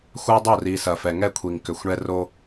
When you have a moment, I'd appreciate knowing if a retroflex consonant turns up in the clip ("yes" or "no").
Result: yes